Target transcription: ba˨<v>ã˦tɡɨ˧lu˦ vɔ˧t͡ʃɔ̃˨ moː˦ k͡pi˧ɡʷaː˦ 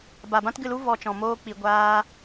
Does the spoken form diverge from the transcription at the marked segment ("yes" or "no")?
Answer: yes